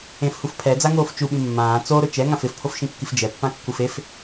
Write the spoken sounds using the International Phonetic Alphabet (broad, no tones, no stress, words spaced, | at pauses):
ẽfhuf pʰɛd͡zaŋoːf t͡ʃuɓĩ mːãː t͡soɾʊ t͡ʃɛŋãf ɪfpʰofʃĩkːif d͡ʒɛpːãkːuf ef